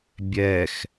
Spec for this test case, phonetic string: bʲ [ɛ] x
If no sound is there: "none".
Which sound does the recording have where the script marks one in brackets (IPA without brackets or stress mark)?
ɛ